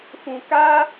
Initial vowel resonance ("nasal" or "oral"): nasal